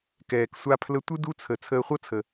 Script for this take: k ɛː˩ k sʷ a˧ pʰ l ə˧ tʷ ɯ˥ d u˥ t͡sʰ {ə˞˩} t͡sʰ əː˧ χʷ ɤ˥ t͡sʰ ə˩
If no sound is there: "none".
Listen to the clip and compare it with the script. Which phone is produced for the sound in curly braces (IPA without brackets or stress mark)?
ə˩